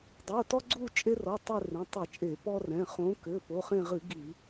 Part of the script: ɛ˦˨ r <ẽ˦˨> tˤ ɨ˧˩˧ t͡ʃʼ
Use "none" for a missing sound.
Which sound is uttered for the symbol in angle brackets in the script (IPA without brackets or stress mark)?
ẽ˩˧˩